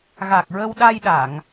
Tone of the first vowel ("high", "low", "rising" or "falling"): low